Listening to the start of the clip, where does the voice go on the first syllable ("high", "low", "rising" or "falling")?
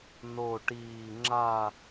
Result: low